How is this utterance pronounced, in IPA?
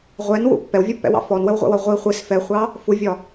ʁʷɛnwṵ pːɛwvʲupːɛ̰wɑ̰ fɔnwəwʁʷɛ̰wɒ ʁʷi χʷis fɛχʷɑ | fuvʲɒ

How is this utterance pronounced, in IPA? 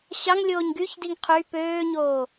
ɕɑŋlʲoːɲ ɡyçdiŋ qʰy pøːɲoː

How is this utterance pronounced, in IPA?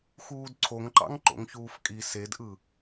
xuːdǀʰoŋǃɑ̰ŋ ǃo̰ŋçuːfkʼi sedʔɯ

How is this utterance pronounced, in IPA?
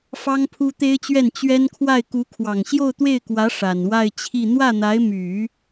fɑ˥ŋpʰu˥t̪e˥ɪ̯t͡ɕɥɛ˥˩n t͡ɕɥɛ˥nkʰwa˥˩ɪ̯ ku˧˥kʰwɑ˨˩ŋ ɕjo˥˧ʊ̯t̪we˥˩ɪ̯kwä˧˥ ʂa˨˩nwa˥˧ɪ̯ t͡ɕʰi˥˧ n̪wä˥˩n̪a˧˥ɪ̯my˨˩˦

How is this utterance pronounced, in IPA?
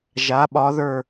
ʒa˨˥ɓɒ˨˥ðə˞˦˨

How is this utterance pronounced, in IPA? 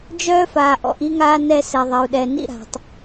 d͡ʒœː˦faː˨ʔ ɔ̰˦˨ʔi˦ŋaː˦ nɛ˦sɛ˨ðˤe˨u̯ɗɛ˨ nḭ˦ɾa̤˨tˤ

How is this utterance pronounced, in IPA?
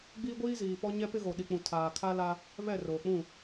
ɡ͡biː˦ɡʷiː˦ ziː˨pɔ˦ ɲɛ˦pɪ˦ɣo˨ ɗi˨k͡pũ˨ tʰaː˨kʰa˦la˦ | βɛ˦˨roː˨k͡pũ˦˨

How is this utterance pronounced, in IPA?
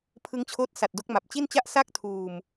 pʰɯ˦˥ŋt͡ɕʰoː˦˥t̚sa˨˩t̚ do˦˥k̚ma˨˩p̚t͡ɕi˥˩nt͡ɕa˥˩ʔ sa˥˩k̚tʰuː˨˩m

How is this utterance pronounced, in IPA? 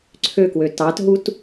ǀʰøkwø tɑtɦut

